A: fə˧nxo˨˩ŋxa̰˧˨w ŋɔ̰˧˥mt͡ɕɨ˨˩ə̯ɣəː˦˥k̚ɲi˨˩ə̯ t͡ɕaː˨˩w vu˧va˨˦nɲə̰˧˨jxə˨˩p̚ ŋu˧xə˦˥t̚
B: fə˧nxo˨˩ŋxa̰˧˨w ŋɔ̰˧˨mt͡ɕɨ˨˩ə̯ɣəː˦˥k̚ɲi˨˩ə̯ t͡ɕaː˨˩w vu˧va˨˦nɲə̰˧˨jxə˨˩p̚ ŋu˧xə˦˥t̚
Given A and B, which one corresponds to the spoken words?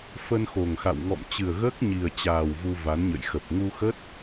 B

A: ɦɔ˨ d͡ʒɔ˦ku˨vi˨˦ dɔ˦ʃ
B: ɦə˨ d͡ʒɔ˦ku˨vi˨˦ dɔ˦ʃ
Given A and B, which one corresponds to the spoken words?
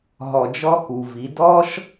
A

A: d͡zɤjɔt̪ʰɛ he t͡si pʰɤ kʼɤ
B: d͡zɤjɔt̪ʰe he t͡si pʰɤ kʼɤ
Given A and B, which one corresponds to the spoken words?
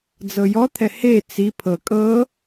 A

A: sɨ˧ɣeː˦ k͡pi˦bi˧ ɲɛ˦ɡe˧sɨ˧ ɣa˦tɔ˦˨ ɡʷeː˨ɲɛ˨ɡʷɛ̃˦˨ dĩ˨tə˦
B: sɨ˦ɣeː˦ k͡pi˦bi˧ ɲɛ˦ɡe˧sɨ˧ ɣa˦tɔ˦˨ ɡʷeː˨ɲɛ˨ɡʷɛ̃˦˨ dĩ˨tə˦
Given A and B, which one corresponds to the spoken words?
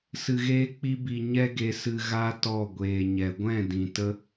A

